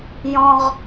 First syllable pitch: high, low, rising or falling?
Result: high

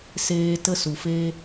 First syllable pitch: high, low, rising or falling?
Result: low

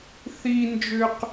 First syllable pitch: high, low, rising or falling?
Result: low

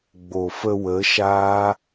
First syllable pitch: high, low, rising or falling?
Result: low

